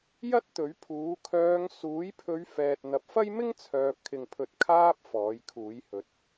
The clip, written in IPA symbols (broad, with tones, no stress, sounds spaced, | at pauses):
j ɐ˥ t̚ t̪ ɵ˨˥ ɥ pʰ uː˨˥ kʰ œː˨˧ ŋ s uː˨˥ j pʰ ɵ˨˧ ɥ f ɛː˨ t̚ n̪ ɐ˨ p̚ f ɐ˥ j m ɪ˥ ŋ t͡sʰ œː˨ p̚ kʰ ɪ˨ ŋ pʰ ɵ˨˥ t̚ kʰ aː˧ p̚ f ɔː˨˥ j kʰ uː˨˥ j h ɵ˨˥ t̚